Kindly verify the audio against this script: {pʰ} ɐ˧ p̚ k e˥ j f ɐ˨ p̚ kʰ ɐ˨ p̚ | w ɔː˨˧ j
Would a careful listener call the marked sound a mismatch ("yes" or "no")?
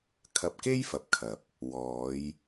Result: yes